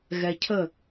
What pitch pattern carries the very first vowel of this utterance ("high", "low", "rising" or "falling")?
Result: low